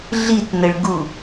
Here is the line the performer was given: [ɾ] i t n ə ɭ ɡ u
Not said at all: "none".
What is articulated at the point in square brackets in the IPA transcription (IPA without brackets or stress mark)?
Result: ɮ